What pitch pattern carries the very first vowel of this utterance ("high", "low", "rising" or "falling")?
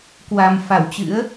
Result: low